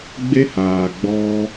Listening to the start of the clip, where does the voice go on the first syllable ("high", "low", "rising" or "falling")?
high